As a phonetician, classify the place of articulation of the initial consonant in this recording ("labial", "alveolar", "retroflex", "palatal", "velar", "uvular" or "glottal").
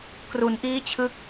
velar